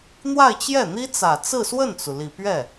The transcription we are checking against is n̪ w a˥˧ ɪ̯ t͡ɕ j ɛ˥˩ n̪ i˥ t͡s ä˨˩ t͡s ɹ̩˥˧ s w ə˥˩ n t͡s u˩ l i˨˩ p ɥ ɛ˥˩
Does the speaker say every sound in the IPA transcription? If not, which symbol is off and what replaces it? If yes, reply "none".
none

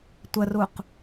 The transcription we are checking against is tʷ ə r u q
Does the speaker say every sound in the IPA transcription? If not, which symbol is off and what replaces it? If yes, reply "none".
none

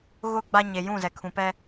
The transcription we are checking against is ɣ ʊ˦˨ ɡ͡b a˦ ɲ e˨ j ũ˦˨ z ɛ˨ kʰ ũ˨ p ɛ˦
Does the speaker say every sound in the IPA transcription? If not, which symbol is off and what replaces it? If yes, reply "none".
none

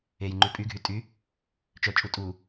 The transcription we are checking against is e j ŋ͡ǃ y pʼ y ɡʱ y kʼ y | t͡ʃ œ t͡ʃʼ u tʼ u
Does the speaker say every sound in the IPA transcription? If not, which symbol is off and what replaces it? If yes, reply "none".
kʼ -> tʼ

